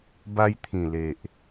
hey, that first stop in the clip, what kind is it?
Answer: plain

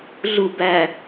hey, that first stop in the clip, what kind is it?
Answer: plain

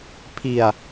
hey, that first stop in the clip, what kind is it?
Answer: aspirated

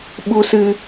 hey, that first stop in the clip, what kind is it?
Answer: implosive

